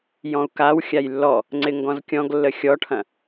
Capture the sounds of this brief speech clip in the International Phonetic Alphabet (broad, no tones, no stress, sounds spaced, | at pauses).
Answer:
j ɔ̃ u̯ k a w xʲ a j lː ɔ | ŋ͡ǀ ɪ ŋ ɡ ɔ̃ z kʲ ɔ̃ ɡ lː ə xʲ ɔ ʈʰ ɐ̃